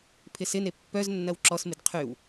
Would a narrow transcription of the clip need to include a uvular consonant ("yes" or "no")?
yes